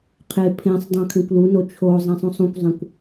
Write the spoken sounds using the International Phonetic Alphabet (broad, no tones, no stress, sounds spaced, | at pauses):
qʰ e pʰ ẽ sˤ dˤ ũ kʰ ẽ kʷ l u n o t͡ʃʰ o zˤ ẽ sˤ ũ sˤ ũ kʷ zˤ ẽ kʷ